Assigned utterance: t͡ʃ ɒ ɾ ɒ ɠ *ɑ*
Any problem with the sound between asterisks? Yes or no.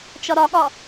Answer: yes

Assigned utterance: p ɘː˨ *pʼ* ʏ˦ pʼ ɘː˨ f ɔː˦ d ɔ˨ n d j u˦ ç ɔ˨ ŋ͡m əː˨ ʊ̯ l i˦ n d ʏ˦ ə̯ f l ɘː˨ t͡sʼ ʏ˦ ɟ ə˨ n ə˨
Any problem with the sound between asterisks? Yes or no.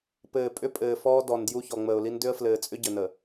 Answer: no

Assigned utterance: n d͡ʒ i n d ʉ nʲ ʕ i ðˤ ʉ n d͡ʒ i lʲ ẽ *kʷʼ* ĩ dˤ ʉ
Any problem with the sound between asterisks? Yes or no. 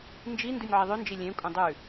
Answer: no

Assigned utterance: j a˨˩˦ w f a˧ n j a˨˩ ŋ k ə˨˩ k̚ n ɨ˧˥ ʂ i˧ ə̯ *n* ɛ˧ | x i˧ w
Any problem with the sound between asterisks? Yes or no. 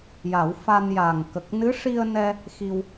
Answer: no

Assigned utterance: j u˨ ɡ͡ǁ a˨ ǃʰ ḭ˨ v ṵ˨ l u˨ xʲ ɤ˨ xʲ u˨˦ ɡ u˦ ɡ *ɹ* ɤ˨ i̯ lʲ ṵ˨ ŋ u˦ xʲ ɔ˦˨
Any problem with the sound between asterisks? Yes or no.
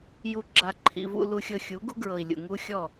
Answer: no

